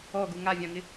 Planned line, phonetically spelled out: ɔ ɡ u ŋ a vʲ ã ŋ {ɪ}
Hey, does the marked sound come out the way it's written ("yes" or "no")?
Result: yes